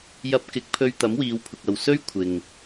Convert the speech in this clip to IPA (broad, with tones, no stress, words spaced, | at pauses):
jɐ˧p̚kɪ˨˥k̚pʰɵ˧ɥ t̪ɐ˨˥mwiː˨˧wpʰʊ˨k̚ɐ˨w sɵ˥ɥ kʷʰɪ˨ŋ